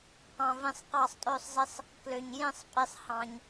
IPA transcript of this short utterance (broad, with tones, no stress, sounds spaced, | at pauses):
q ɑ̃˧ v ĩ˧ sˤ q ɑ˥˧ sˤ tʼ ø˥˧ sˤ z i˧ sˤ | k l ø˧ ɲ j ĩ˥˧ sˤ pʼ i˧ sˤ h ɑ̃˧ ɲ